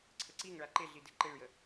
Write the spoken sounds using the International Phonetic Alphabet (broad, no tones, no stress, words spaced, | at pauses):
ǀʰəǀiŋɭa ǃeɮide ǃeɭjə